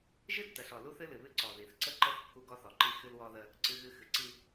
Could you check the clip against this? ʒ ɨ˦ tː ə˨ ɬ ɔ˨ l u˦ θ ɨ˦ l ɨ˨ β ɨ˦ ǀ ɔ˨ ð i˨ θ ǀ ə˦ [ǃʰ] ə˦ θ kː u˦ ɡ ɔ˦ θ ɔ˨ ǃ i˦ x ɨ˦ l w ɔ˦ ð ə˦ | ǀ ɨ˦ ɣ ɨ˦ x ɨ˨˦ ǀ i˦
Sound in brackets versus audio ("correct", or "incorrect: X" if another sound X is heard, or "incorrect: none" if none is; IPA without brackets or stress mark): incorrect: ǃ